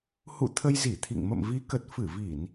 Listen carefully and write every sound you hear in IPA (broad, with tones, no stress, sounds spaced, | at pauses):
h ṵ˧˨ t̪ʰ ə˧ j z i˧˩ t̪ʰ ḭ˧˨ ŋ m ə̰˧˨ m v i˨˦ k ə˨˩ t̚ f ɨ˧˩ v i˧˩˨ n